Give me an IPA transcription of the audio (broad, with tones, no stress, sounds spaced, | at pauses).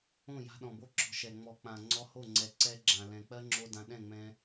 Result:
õ˦˨ j a̤˧ ɗ ɔ̃˨ b o˦ ǁ ɔ̤˧ ʃ ɛ˨ ŋ͡m ɔ˨ k͡p ã˨ ŋ͡ǀ ɔ˧ h o˦˨ ŋ͡ǀ ɛ˨ ǀ ɛ˦ ɡ͡ǁ ã˨ l ɛ̃˨ k͡p ɜ˦ ŋ͡ǁ o˧ d ã˧ ɗ ɛ̃˦˨ ŋ͡m ɛ̃˧